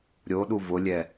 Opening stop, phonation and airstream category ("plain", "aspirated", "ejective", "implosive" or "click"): implosive